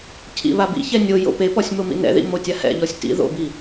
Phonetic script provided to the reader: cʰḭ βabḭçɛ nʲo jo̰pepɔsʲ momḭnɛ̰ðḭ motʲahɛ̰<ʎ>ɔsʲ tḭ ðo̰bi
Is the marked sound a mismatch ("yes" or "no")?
no